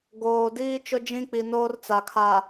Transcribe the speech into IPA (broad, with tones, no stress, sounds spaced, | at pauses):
ɡ oː˨ d iː˦ t͡ʃ ʊ˦ d͡ʒ ĩ˦ k͡p i˨ n oː˦ r t͡s a˨ kʰ a˨